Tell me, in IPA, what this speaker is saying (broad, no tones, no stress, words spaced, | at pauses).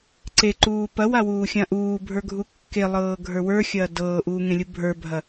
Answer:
ǀeǃuː pɐwawuːxʲã ʔuːbʱə˞ɡʱu kːelˠɤːɡʱə˞ wə˞xʲɐː dɤːʔuːŋẽlʲu bʱə˞bʱɐ